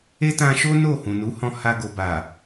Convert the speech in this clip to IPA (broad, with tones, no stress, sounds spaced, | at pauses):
e˦ t ã˧ ʃ o˦ n o˦˨ h ũ˨ n u˨˦ h ɔ̃˧ h a˧ ɡ o˨ b a˨